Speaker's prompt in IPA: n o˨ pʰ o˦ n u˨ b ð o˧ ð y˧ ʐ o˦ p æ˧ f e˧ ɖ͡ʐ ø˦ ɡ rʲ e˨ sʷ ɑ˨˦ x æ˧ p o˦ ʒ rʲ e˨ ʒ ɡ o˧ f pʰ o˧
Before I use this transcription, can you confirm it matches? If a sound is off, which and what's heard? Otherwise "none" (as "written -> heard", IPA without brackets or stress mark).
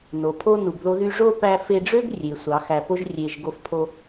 none